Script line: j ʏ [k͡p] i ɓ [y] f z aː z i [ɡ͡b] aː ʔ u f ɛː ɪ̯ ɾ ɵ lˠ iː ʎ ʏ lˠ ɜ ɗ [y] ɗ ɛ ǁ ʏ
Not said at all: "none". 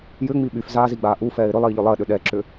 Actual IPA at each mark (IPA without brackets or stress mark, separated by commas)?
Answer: ŋ͡m, y, ɡ͡b, ʏ